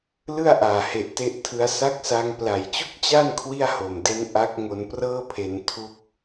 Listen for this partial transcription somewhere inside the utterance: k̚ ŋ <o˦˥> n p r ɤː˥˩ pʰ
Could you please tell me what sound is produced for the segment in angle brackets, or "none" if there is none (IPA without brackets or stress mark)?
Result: o˧